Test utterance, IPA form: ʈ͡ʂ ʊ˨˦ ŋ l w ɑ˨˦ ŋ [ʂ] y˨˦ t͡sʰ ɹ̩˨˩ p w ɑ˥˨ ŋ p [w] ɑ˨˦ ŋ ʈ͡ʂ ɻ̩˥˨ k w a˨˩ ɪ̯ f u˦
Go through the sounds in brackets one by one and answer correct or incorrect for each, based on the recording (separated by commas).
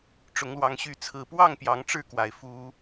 incorrect, incorrect